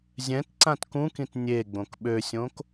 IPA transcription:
zʲ ɛ̃ t ǀ ã t k ũ k ĩ t nʲ e ɡ͡b õ k ɓ ø sʲ õ k

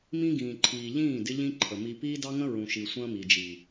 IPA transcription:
m ĩ˦ ɡ ĩː˨ ǃʰ iː˨ ʎ ĩː˦˨ d ɪ˦ ʎ ĩ˦ ǃʰ ə˨ m i˦ p iː˦ d ɑ˦ ŋ ə̃˦ ɹ ũ˨ ʃ i˨ sʷ ə̃ː˦ m i˨ d͡ʒ i˨

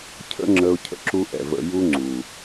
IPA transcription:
cʰ ə̰˦ ŋ͡ǁ ə˧ ʊ̯ cʰ ə̰˨ ǁ u˦ ʔ ɛ̰˨ v ə̰˧ j u˦ ŋ͡ǀ u˨

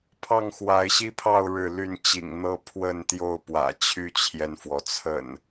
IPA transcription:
pʰ ɑ˥˨ ŋ x w a˨˦ ɪ̯ ɕ i˦ pʰ ɑ˥˨ ʊ̯ ɻ ɻ̩˥˨ l y˥˨ n t͡ɕ ḭ˨˩ ŋ n̪ ɤ˦ pʰ w ə˥˨ n t̪ j o˥˨ ʊ̯ p w ä̰˨˩ t͡ɕʰ y˦ t͡ɕʰ j ɛ˨ n f w ɔ˩ t͡sʰ ə̰˨˩ n

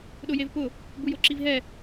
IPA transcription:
ɗ ʊ j e v p ʊ | b u j o ǁ i v ɦ ɛ

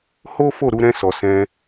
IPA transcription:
h o˦ f o˦˨ ɾ u˨˦ ɾ ɛ̃˧ s ɔ˨ s ɛ̃˧

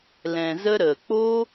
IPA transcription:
l ɛ̃˧ z ə˦ ɾ ə˨ k͡p o˦

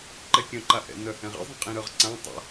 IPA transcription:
ǃ ɛ kʲ œ̃ ǃ a ʔ ɛ̰ n œ h ɛ̃ ʁ ɛ̰ zˤ ĩ qʼ ĩ ɾ œ ʁ ǀ ã tˤ a̰

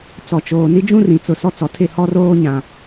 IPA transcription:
t͡s ɔ˨ t͡ʃ oː˨ n i˦ d͡ʒ ũ˦ r ĩ˨ t͡s ʊ˨ s ɔ˦ t͡s ɔ˨ tʰ ɪ˦˨ h ɔ˦ r oː˦ ɲ ã˨

